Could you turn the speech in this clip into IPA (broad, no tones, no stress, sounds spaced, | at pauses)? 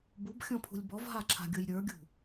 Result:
b u b xʲ ɔ̃ pʰ ṳ lʲ b ɔ v ɦ a ǁʰ a̤ ɡʲ ʊ j ɾʲ ə˞ ɡʲ ṳ